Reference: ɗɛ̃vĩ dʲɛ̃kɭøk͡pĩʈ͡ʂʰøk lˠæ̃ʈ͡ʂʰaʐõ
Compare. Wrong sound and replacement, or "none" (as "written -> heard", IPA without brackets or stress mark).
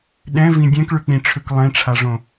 æ̃ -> ɛ̃